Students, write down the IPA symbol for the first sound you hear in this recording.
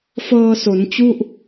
f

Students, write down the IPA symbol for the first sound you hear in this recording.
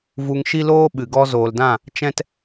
v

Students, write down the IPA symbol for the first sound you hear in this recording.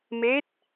m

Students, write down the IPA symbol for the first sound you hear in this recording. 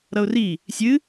ɾ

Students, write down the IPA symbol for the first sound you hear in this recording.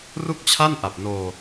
r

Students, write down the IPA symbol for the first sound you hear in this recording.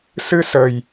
s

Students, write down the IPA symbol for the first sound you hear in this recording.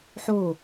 ħ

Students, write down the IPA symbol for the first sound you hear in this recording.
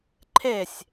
ǃʰ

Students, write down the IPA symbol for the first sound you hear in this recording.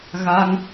ɣ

